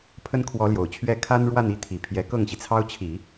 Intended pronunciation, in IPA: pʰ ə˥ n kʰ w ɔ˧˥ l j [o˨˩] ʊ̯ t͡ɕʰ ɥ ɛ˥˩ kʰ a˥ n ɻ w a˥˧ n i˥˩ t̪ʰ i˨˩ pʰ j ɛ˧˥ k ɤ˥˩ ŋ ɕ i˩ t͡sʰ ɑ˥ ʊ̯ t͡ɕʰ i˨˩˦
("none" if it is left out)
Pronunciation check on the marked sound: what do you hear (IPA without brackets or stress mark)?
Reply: o˨˩